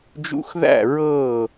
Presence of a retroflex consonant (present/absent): absent